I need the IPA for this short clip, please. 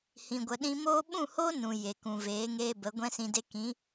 h ĩ˨ ɡʷ ə˨ ɗ ĩ˧ m oː˦ ɓ ũ˦˨ h oː˦ n ũ˨ j e˨ k ũ˨ v eː˨˦ ŋ eː˧ b ə˨˦ ɡʷ ɛ̃˦ s ĩ˧ d e˦ k ĩ˨˦

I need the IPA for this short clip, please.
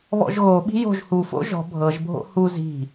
β ɔ̰ ʒ ɣ o ɓ i̤ j o̤ ʒ h u f o̰ ʒ ɔ̤ bʱ ɤ ʒ bʱ o̰ h u z i̤

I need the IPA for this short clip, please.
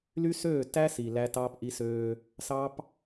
l y˦ s øː˦˨ t æ˦ s i˨ l æ˦ t ɑː˦ p ʔ i˦ s øː˦ | s ɑ˦ p

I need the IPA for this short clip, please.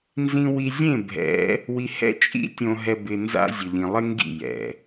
n z ĩ˨ w i˨ zʲ ẽ˦˨ bʱ ɛ̰˨˦ | w i˨ h ɛ̰˦ t͡ʃʼ ḭ˦ tʲ õ˨ ɦ ɛ˨ b ɪ˨ n z a̰˦ zʲ ʊ˨ ʎ ĩ˨ lˠ ɪ˦ ŋ ɡ ḭ˦˨ j ɛ̰˨

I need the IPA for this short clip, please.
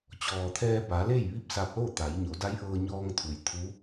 t͡ɕ ɔː˩ t̪ʰ ɛː˧ b a˩˧ l e˥˨ j ʋ i˥˨ p̚ s a˧ p̚ l o˥˨ t̪ a˩˧ j ɲ o˩˧ d a˧˥ j ʔ ɤː˧ ɲ ɔː˧ ŋ t̪ʰ u˩ j t̪ʰ u˧˥

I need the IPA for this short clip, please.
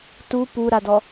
t u p u ɾ a d ɔ

